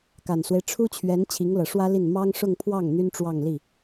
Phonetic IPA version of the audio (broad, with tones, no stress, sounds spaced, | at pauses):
k a˨˩ n s w e˦ ɪ̯ ʈ͡ʂʰ u˥ t͡ɕʰ ɥ ɛ˧˥ n t͡ɕʰ i˧˥ ŋ l ɤ˨˩ ʂ w ä˥ l i˥˩ n m ɑ˥ ŋ ʂ ʊ˥˧ ŋ pʰ w ɑ˥˩ ŋ n̪ y˥ n ʈ͡ʂ w ɑ˥˧ ŋ l i˥˩